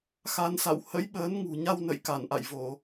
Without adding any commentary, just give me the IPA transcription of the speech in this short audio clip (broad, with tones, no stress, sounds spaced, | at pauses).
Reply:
x a˧ n s a̰˧˨ w h ə̰˧˥ j ɓ əː˨˦ n ŋ ṳ˨˩ ɲ a˧ w n ə̰˧˨ j k a˧˩ n ʔ a̰˧˨ j v o˧˩˨